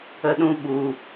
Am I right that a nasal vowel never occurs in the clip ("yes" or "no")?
no